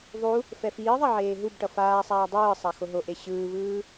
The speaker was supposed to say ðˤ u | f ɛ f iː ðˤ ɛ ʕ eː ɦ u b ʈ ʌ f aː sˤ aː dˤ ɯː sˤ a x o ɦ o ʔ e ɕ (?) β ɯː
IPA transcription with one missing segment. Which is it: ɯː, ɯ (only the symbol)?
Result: ɯː